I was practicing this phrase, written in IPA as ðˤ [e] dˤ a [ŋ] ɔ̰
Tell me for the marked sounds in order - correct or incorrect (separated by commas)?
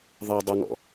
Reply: correct, correct